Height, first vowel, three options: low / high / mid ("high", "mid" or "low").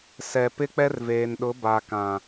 mid